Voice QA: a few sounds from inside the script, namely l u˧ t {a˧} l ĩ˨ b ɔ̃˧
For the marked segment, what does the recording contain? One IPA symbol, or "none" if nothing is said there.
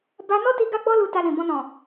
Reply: a˧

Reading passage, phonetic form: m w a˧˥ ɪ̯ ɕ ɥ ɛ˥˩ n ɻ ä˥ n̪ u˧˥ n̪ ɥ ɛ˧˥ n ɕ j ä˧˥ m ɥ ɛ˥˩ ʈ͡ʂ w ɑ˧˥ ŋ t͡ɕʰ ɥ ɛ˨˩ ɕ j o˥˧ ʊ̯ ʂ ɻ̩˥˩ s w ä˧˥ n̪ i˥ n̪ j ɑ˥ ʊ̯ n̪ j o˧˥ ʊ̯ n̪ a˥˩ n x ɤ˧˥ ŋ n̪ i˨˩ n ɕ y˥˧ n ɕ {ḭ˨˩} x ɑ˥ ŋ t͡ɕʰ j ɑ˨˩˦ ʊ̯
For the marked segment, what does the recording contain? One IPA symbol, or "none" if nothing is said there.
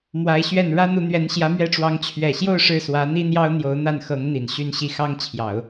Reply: i˥˩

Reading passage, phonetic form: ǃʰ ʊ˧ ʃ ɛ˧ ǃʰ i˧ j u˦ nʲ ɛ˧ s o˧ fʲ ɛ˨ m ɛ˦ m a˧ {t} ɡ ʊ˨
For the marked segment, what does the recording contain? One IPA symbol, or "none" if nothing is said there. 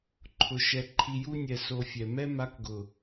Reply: k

